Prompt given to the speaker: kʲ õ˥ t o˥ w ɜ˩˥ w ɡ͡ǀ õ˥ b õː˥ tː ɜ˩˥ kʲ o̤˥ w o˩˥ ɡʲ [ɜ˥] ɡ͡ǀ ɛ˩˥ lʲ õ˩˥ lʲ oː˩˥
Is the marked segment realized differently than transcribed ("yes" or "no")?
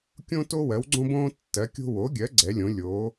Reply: yes